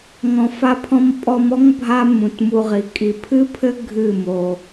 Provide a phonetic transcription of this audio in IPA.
ŋ ɔ̃˧ f a˦ pʰ ɔ̃˦ m pʼ ɔ˧ m ɔ˦ ŋ bʱ a˦ m ũ˨ t m u˧ ʁ i˨ kʼ i˨ pʰ ɨ˦ pʰ ɘ˦ ɡʱ ɨ˦˨ m o˧

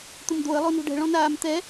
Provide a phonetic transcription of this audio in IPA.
t̪ ʊ m d̪ o ə̯ lˠ o n o̤ ɖ ɛ̤ ɭ ɔ̃ n aː m t̪ ɛ

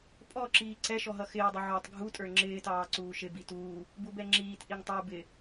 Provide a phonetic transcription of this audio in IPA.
pʼ ɔ ǁ iː ǀ ɛ ʃ ɔ ɦ ʌ x ɪː dˤ ʊ ʕ ɔ tˤ ɡʱ u tʼ ə˞ ŋ͡ǁ ɪː t ɑː ǀ uː ʃ ɪ b i t uː | b u b ɛ ŋ͡ǁ iː t ʔ i ŋ tˤ ə˞ b ɪ

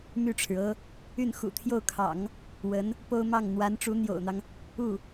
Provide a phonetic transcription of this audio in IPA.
m y˥˩ ʈ͡ʂʰ ɻ̩˩ ɤ˥ | y˥˩ n x ṵ˨˩ t̪ʰ j o˥˩ ʊ̯ kʰ ɑ̰˨˩˦ ŋ | w ə˧˥ n | p o˥ ʊ̯ m ɑ˥˩ ŋ n̪ w a˧˥ n ʈ͡ʂ u˧˥ n̪ j o̰˨˩ ʊ̯ n̪ ɑ˦ ŋ | u˥˩

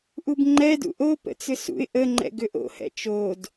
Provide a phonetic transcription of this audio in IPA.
ʔ u b ŋ͡ǃ ɛ d ṵ ʔ o p ə̰ t͡s ʏ s ṵ ɪ̯ ʔ ə ŋ͡ǃ ɛ̰ ɡ ʏ ʔ o̰ h ɛ̰ t͡ʃ o d

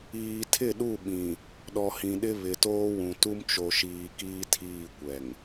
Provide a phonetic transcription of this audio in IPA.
iː˨ tʰ ɪ˦˨ ɗ u˦˨ ɓ ĩ˨ | ɗ ɔ˨ h ĩ˨ ɗ ɪ˦ β ɪ˨ t oː˦ w ũ˨ t u˦ m t͡ʃ o˨ ʃ iː˨ k iː˦ tʰ iː˦˨ kʷ ɛ˨ ŋ

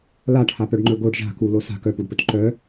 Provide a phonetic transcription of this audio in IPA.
l a ʈʰ a p œ ɖ ŋ͡ǃ ɵ ɡ o ɖ ʒ a̤ k u l o s a̤ k œ p u ɖ p ɵ t ǃ œ

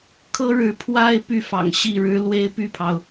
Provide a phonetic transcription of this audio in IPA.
kʰ ɤ˥ ɻ ɻ̩˧˥ pʰ w a˥ ɪ̯ p y˥˩ f ɑ̰˨˩ ŋ ɕ i˥˩ ɻ ɻ̩˥ l w e˥ ɪ̯ p y˥˩ pʰ ɑ˩ ʊ̯

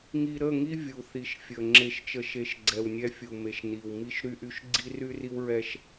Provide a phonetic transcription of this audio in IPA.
ŋ i˨ ɾ ə˦˨ ŋ i˦ vʲ u˨ θ i˨ ʃ fʲ ə˨ ŋ͡ǁ e˨ ʃ t͡ʃ ə˨ ʃ e˨ ʃ ɡ͡ǀ ɛ˨ w nʲ ɛ˦ fʲ u˨ m e˨ ʃ n i˨ w m i˦ ʃ ɾ y˦ ʔ y˦ ʃ ɡ͡ǀ i˦ r y˦ r i˦ w ɹ ɛ˦ ʃ

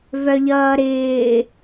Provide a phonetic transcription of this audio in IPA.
v œ ʎ ʌː ɾ ɪː

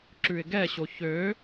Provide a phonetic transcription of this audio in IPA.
ǁ ʉ ɪ̯ ɡ ɛ ɕ o ç ø

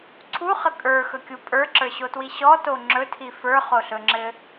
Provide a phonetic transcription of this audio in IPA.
ǀʰ u χ ə kʼ ə˞ x ɵ kʲ u pʼ ə˞ ǁ ə˞ ɕ o t w i ɕ ɔ t o ŋ͡ǁ ɵ tʰ i f ə˞ χ o ɬ ɵ ŋ͡ǁ ɘ

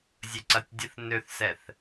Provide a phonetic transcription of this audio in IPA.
zʲ ə ǀ ɐ tʲ dʲ ə θ n ø θ s ɛ θ

